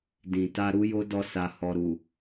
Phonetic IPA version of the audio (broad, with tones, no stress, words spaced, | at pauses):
dĩ˨ ta˧ɾu˦jo˦dɔ˧ sa˨hɔ˨ɾu˨